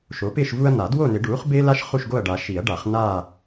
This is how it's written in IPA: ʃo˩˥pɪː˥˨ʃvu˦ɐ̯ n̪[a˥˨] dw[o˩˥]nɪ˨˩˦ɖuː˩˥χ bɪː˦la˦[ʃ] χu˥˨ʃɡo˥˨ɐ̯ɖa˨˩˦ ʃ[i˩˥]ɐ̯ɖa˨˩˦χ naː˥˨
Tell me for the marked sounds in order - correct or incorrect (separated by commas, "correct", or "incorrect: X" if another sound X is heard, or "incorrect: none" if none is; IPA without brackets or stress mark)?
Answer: incorrect: a˨˩˦, incorrect: o˥˨, correct, incorrect: i˨˩˦